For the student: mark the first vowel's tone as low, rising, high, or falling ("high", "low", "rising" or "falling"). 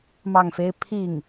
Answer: falling